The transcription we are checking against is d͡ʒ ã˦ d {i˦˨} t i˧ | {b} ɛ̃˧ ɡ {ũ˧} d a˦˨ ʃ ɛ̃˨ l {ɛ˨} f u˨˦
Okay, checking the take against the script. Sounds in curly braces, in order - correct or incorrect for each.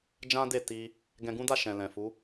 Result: incorrect, incorrect, incorrect, incorrect

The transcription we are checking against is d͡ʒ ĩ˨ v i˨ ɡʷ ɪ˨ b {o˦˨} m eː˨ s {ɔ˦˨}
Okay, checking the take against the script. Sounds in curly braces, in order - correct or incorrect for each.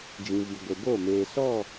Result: correct, correct

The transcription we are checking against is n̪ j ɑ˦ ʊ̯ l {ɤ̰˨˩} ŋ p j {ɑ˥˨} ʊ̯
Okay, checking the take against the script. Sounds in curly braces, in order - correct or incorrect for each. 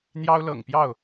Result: correct, correct

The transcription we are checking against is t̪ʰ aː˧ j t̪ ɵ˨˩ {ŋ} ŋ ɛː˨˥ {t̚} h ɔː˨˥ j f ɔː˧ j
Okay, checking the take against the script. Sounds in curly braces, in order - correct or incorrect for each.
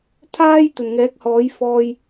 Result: incorrect, incorrect

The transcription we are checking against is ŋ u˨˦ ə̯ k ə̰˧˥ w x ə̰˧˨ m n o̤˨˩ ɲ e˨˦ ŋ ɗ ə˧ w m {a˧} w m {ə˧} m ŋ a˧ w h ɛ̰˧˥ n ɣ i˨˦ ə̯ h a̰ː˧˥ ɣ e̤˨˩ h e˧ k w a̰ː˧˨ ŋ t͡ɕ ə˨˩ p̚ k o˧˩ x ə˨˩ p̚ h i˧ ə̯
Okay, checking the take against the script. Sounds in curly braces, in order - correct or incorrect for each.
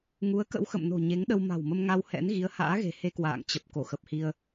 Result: incorrect, correct

